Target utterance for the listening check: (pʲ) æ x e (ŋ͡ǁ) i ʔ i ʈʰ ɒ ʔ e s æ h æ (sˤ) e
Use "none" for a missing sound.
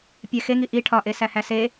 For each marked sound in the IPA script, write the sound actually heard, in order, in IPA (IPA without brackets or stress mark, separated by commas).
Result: pʲ, ŋ, s